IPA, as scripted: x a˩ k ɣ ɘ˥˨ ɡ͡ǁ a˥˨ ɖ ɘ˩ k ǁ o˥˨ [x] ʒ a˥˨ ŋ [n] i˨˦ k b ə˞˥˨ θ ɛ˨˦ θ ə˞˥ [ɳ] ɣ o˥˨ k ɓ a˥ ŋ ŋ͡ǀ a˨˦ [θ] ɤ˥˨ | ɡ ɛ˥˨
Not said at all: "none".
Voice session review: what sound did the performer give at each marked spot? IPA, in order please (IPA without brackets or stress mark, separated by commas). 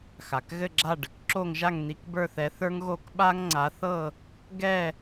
ŋ, n, ŋ, θ